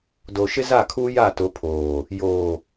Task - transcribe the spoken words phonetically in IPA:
d o˨ ʃ ɪ˦ z a˦˨ kʰ uː˦ j a˦˨ t ʊ˨˦ pʰ oː˨ | j oː˨

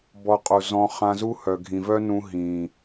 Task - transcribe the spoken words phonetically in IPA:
b ɔ˧ qʼ u˨ z ɔ̃˧ χ ã˧ z u˦ h œ˨ ɡʱ ĩ˨ v œ˦ n ũ˧ ɦ ĩ˨

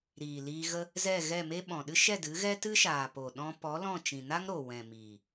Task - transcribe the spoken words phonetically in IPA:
ɾ iː˨ l iː˧ ɣ ə˦ | z ɛ˦˨ ɣ ɛ˦˨ m e˦ ɓ ɔ̃˨ ɗ ɨ˦ ʃ ɛ˦˨ d ɨ˨˦ ɣ ɛ˦ t ɨ˦ ʃ aː˨ p o˨ ɗ ɔ̃˧ p ɔ˨˦ l ɔ̃˦˨ t͡ʃ ĩ˨ n a˦ ŋ ɾ o˨ w ɛ̃˨ m iː˨

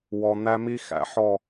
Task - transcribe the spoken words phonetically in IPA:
w ɔ˨ n̪ æ˦ m i˦ x æ̰˨ ħ ɔ˦˨

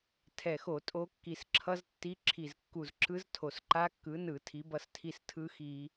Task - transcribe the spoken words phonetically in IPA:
tʰ ɛ˨˩ x o˧˩˧ tʼ o˦˥ kː i˨˩ s ǁʰ ʌ˦˥ z tː i˦˥ ǁʰ i˨˩ z kː u˨˩ z ǁ ɯ˦˥ z tʰ o˨˩ s ǃ a˦˥ kː ɯ˨˥ n ɯ˧˩˧ tʰ i˨˥ b ʌ˦˥ s tʰ i˥˨ s tʰ ɯ˦˥ x i˧˩˧

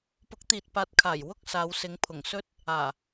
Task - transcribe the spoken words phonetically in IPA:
p ʊ˨˥ k̚ t̪ iː˨ t̚ p aː˨˥ t̚ kʰ aː˨˩ j w ʊ˥ k̚ s aː˨˧ w s ɪ˨˧ ŋ pʰ ʊ˨˩ ŋ s ɵ˥ t̚ | aː˨˩

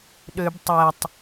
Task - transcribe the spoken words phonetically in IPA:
ɗ ø b tˤ ɛ tˤ

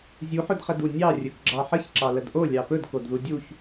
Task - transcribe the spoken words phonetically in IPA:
zʲ u ħ ɵ d χ ə d u nʲ ɑ rʲ ɵ k ɡ͡ǁ ɑ ħ ə ç ǁ ɑ l ə d ʔ o lʲ ɑ p ɵ d k o d ð u dʲ u ç

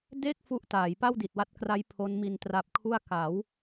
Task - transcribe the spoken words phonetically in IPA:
d e˥˩ k̚ f u˦˥ ʔ t aː˩˦ j p a˥˩ w d i˨˩ t̚ w a˦˥ t̚ k r a˦˥ j pʰ o˦˥ n m i˧ n t r a˦˥ p̚ kʰ u˥˩ a̯ k a˩˦ w

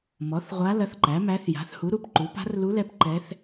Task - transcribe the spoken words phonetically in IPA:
m ɔ˩˥ θ ʁʷ a˧˥ l ɐ˧˥ θ ǃ æ˩˥ m æ˧˥ θ j a̤˩˥ θ h u˩˥ ɾ u˩˥ p ǃ u˩˥ p a̤˧˥ r l u˧˥ l ɛ˧˥ p ǃ ɛ˧˥ θ

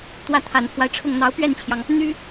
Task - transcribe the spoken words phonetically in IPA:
t̪ w ä˥˩ t̪ʰ a˨˩ n pʰ w a˦ ɪ̯ ʈ͡ʂʰ ʊ˥˩ ŋ n̪ ɑ˧˥ ʊ̯ p ɥ ɛ˥˩ n t͡ɕʰ j ɑ˩ ŋ | n̪ y˥

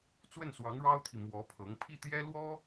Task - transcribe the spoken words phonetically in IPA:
t͡s w ə˥˩ n s w ɑ˧˥ ŋ ɻ ɑ˥ ʊ̯ t̪ʰ i˨ m w ɔ˧˥ pʰ ɤ˧˥ ŋ pʰ i˥˩ t̪ j ɛ˥ l w ɔ˥

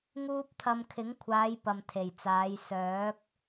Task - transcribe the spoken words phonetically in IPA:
ŋ uː˥ p̚ t̪ʰ ɐ˧ m kʰ ɪ˨˥ ŋ kʷʰ aː˨˧ j p ɐ˨ m t̪ʰ e˨˩ j t͡s aː˨˧ j s œː˨˥ k̚

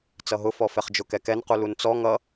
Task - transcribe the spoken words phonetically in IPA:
t͡s ʌ ɦ ʊ f ɔ f ɛ χ d͡ʒ ʊ k ɛ k ɛ n q u l u n t͡s ɔ ŋ ʌ

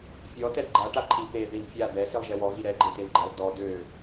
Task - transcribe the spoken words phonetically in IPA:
fʲ ɔ t ɛ d ɡ͡ǃ a ʈ a ǃʰ i p e ð i l fʲ a d ɛ s i lˠ ʒ ɛ w ɔ ɣ i ɾ ɛ ɡ͡ǃ e t e l ɡ͡ǃ ɛ lˠ d ɔ d ø

